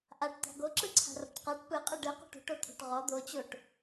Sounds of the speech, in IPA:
ʔ a ʈ t̪ a̤ ɡ o ǁ ɯ ǀʰ a̤ r ɔ̤ ʈ q a ʈ p ɯ qʼ ɯ ɖ ɯ q o̤ ʈ o̤ ʈ o t̪ʰ o̤ ʈ ʁ ɔ d̪ o t͡ɕ o ʈ

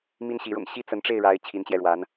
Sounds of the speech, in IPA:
m i˥ n ɕ i˧˥ ɻ ʊ̰˨˩ ŋ ɕ i˥˩ t͡s ə˧˥ n ʈ͡ʂ e˥˩ ɪ̯ ɻ a˧˥ ɪ̯ t͡ɕʰ i˧˥ n t͡ɕ j ɛ˧ ɻ w a˧˥ n

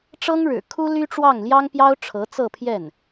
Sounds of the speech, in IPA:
ʈ͡ʂ ɤ˥ ŋ ɻ ɻ̩˨˩ kʰ u˥ l y˥ ʈ͡ʂ w ɑ˥˩ ŋ l j ɑ˥ ŋ p j ɑ˥ ʊ̯ ʈ͡ʂʰ ɤ˧˥ t͡s ɤ˥˧ pʰ j ɛ˥˩ n

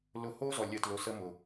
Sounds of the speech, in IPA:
l ʊ˦˨ h o˦ z ɔ˨ lʲ ə˧ t l ʊ˧ s ə˦ m ʊ˨

